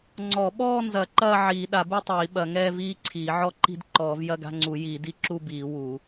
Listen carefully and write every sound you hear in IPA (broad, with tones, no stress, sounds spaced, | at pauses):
ŋ͡ǀ ɔ˨˩˦ ɓ ɔː˥˧ n z ɐ˨˩˦ ǃ ɐː˥˧ ʕ iː˨˩˦ ɗ a˨˩˦ b u˥˧ tˤ iː˨˩˦ ɓ ɐ˨˩˦ ŋ ɛː˥˧ v iː˥˧ ǀʰ iː˨˩˦ ʕ ɔ˥˧ ǃ i̤˥˧ d ǃ ɔː˨˩˦ v j ɐ˥˧ ɡ a̤˥˧ ŋ͡ǀ u˨˩˦ j iː˨˩˦ d i˥˧ ǁ u˥˧ b iː˨˩˦ w u˨˩˦